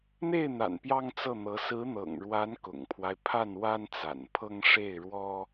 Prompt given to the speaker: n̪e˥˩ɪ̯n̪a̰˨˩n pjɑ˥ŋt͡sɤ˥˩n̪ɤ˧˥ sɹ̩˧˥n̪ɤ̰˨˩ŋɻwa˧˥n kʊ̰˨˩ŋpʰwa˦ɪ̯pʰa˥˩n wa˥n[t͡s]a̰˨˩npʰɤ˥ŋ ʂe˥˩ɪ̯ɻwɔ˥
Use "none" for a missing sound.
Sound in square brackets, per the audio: t͡s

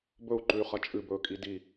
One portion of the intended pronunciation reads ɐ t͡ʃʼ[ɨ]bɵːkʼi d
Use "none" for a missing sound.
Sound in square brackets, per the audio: ɨ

